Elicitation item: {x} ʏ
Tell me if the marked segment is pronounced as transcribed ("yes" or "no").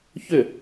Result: no